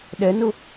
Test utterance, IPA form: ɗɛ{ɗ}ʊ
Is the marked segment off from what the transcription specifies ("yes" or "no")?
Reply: yes